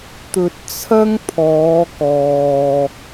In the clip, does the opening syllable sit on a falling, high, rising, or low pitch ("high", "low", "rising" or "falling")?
low